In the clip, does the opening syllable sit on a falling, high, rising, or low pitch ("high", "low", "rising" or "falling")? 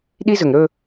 high